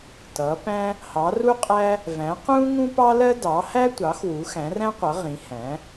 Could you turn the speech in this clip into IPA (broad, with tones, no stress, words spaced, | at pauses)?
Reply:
tʌː˩˥pæ̃˥ | hɑ˩˥ru˥qʼæ˥ | væ̃˩˥qũː˥ ŋũ˥pɑ˥lɜ˥ dɑ˩˥hæ˥tʷɑ˩˥x wu˩˥xæ̃˩˥ræ̃˥qʷʌ˩˥ ʁĩ˩˥hæ̃˩˥